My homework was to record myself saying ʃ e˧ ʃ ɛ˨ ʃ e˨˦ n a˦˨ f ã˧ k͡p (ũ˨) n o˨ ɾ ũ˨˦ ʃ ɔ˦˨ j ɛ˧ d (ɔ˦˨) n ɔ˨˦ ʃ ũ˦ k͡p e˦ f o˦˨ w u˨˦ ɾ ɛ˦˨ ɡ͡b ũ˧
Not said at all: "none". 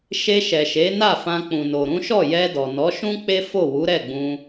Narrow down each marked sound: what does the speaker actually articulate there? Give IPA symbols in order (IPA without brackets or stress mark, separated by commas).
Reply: ũ˨, ɔ˨